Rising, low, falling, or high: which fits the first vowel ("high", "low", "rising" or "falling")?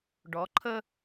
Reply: rising